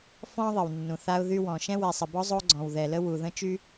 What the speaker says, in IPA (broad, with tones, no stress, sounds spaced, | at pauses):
f ɔ̃˥ ðˤ ə˩ w nː ũ˩ θ a˥ ʊ̯ ð y˥ w ɔ̃˩ ʃ ɛ̃˥ w ɛ˩ sˤ ə˩ b ɔ˥ zˤ o˥ ɡ͡ǀ ɔ̃˩ w ð ɛ˩ l ə˥ w u˩ ð ə̃˥ t͡ʃ y˥